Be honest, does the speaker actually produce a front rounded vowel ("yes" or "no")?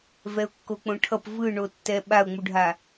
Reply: no